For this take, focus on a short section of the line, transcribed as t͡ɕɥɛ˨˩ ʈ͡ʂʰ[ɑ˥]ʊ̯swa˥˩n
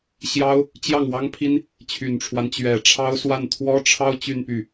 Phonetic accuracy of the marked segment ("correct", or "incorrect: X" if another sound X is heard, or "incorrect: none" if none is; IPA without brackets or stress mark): correct